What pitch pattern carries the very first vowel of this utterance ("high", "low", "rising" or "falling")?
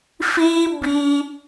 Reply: high